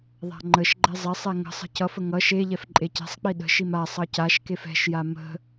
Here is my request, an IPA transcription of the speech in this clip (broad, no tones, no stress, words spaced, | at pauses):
ðˤa̤ŋ͡ǃəʃɡ͡ǃɛ zˤɛsˤɛ ŋə̤sˤə̤ cʌfə ŋʌ ʃeʎɛf ǃʼecɛ̤sˤk͡pi ɗə̤ʃim asˤʌ caʃkef ɛ̤ʃja mə̤